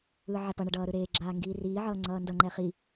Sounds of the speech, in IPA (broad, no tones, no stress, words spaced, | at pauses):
ɯːʕɛpʌɳʌ ɖʌːɾɯɾeːɡ͡ǁaː ŋɡiːriːʕʌː ŋ͡ǀʌːndʌŋ͡ǃɛ χi